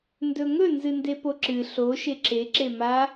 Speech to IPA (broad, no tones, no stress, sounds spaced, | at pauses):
n d ɵ ŋ ɵ n z ɨ n d e p o ǁ ɨ ɬ o ʃ e ǁ e ǁ e m a